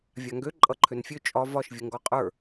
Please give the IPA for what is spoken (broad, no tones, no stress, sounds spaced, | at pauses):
vʲ a ŋ ɡ ø ǃʼ ʌ ǃʰ ø n fʲ ø t͡ʃʼ ɒ v ɒ ʃ vʲ ə ŋ ɡ ɒ qʼ ə˞